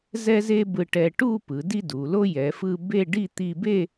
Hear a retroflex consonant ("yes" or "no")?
yes